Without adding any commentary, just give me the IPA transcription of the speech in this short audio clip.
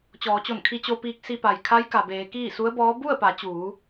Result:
t͡ɕɔː˩˧t͡ɕo˧˩nkʰi˧ t͡ɕo˧piː˧k̚ si˧pa˩j kʰa˧˥jka˩beː˩˧ kiː˥˨su˧˥ə̯bɔː˧˥ bu˥˨ə̯pa˩˧t͡ɕuː˩˧

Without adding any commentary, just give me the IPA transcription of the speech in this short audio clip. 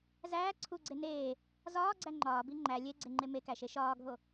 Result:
zæː ǀʰuɡ͡ǀe neː | zɒːɡ͡ǀæ ŋ͡ǃɒːbi ŋ͡ǃæ lʲeɡ͡ǀeŋ͡ǃe mekæʃe ʃɒːɡʱo

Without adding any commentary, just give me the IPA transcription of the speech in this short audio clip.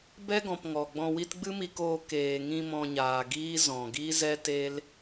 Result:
bɛ˦ɡɔ̃˨p ŋɔ˨ɡ͡bɔ̃˧wi˦t ɡ͡bɨ˦mi˧koː˧ keː˨ŋĩ˧ mɔ̃˧ɲaː˨ɡiː˦ zɔ̃˨ɡi˦ zɛ˦te˦l

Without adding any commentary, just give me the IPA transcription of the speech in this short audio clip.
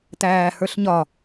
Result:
tæːhə˞ɬɲɒ

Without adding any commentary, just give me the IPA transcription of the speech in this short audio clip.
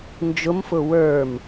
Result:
nd͡ʒʊmfʊ wə˞m

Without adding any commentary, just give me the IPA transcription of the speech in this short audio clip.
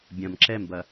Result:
bʲɐ̃m ǁɛmbɐ

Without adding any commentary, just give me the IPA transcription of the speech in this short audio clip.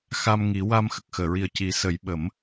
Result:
xa˧mŋi˨˩˦wa˧m xə˨˩k̚xəː˨˩˨ɹi˨˩ə̯ ci˨˩˦sə˨˩˦jɓə˨˩˦m

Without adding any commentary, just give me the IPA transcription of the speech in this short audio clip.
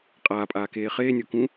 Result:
qʼaːpʼaːkeː χeːnʲokũ

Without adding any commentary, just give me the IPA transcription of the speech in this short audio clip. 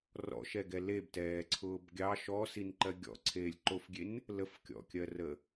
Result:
rɔ̰ʃɛɡɛ lebtɛːǀʰʊːb ɡʲɑ ʃɔsinǃɜ ɡʲɔ̰ǀʰeːlʲ ǃofɡʲen | ləfkʲɔ̰kʲɜrə

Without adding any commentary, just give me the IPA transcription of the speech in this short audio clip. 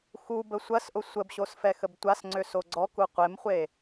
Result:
xu bəsʷɐsʔʊ sʷəbɕos fɛxəbtʷasŋ͡ǀø soɡ͡ǀɔku qʷemχʷe

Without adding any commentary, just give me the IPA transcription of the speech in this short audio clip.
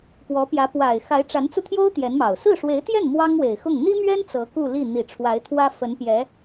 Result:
pwɔ˧˥ pjä˧˥ pwa˨˩ɪ̯ xa˧˥ɪ̯ʈ͡ʂa˧˥nt͡su˧t̪ʰjo˥ʊ̯ t̪jɛ˧˥nmɑ˨˩ʊ̯ sɹ̩˥˩ʂwe˧˥ɪ̯t̪jɛ˥˩n mwɑ˥ŋwe˨˩ɪ̯xʊ˥˩ŋ n̪i˥mɥɛ˥n t͡sɤ˧˥ku˥˧li˥˩ n̪i˨˩ʈ͡ʂʰwa˧˥ɪ̯t̪ʰwä˥ fə˧˥npjɛ˧˥

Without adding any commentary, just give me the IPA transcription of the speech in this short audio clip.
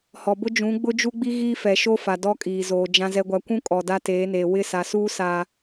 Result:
hɔ˨bʊ˦ d͡ʒũ˨˦ɡ͡bʊ˦d͡ʒu˦ɡ͡bi˦ ɣiː˦fɛ˨ʃo˦fa˨ dɔ˦kʼiː˨zoː˨ d͡ʒã˨zɛ˨ɡʷa˨kʷũ˦ kʼɔ˨da˦ teː˨˦neː˨ wɪ˦˨sa˨suː˦ saː˦

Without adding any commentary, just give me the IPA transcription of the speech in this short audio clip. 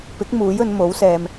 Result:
pɪ˨˥k̚ muː˨˥jɵ˨˧nmo˨˥wsɛː˧m

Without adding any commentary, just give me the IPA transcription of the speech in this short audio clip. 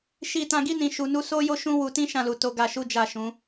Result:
ʃi˧tã˧ɡi˦ nĩ˧ ʃu˨nu˧ so˦jo˦ʃũ˦ wu˧tĩ˦ʃã˦˨lu˨ to˨˦ɡa˧ ʃu˦d͡ʒa˦˨ʃũ˨˦

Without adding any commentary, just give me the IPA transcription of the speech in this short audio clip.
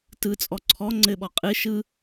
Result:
tɯt͡sʼɔ ǀʰɔ ŋ͡ǀɘɓɔ qʼɨ ʃɯ

